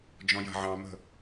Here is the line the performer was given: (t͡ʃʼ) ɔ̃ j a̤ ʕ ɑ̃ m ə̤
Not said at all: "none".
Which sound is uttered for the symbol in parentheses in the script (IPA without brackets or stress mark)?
d͡ʒ